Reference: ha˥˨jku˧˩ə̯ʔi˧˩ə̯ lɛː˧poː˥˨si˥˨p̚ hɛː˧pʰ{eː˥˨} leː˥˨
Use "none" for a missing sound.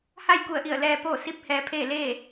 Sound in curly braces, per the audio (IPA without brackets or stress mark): eː˥˨